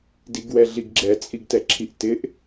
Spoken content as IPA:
d i ɡ w ɛ ɮ i ɡ ɡ͡ǁ ɛ t͡sʼ i ɡ t ɛ ǁʰ i ʔ t ɪ ʔ

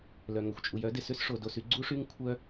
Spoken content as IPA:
l œ˩ ŋ œ˩ xʷ t͡ʃʼ u˩ j œ˥ d ɪ˩ s ʏ˥ s ʂ o˩ d o˩ s y˥ ɡ͡ǀ u˥ ʂ y˥ ŋ kʷʰ œ˥

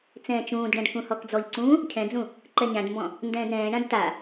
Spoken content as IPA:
t͡s ɛ̃ː t͡ʃ ũː d ɖ ã ɖ k ũ h ɔ k d͡z ɔ ʎ ǀ ũː | cʰ ɛ̃ d͡z ũ | ǃ ɛ ɲ ã ɖ m b ɔ̃ | n d ɛ̃ː d ɾ ɛ̃ː ɳ ã d t a

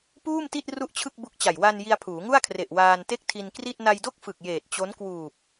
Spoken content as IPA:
p uː˥˩ m t i˥˩ t̚ r u˥˩ ʔ t͡ɕʰ ɯ˥˩ k̚ b u˦˥ k̚ t͡ɕ a˨˩ j w a˧ n j i˧ a̯ pʰ uː˩˦ ŋ u˥˩ a̯ kʰ r e˨˩ ʔ w aː˧ n t e˥˩ k̚ tʰ i˧ n k r i˥˩ t̚ n a˧ j d o˥˩ k̚ f ɯ˨˩ k̚ j eː˨˩ t̚ t͡ɕ o˦˥ n k w uː˨˩ p̚

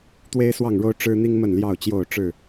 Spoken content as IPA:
t̪ w e˦ ɪ̯ s w ɑ˥˨ ŋ ɻ o˦ ʊ̯ ʈ͡ʂ ɻ̩˦ n̪ i˦ ŋ m ə˥˨ n l j ɑ˥˨ ʊ̯ t͡ɕ j o˥˨ ʊ̯ ʈ͡ʂ ɻ̩˥˨

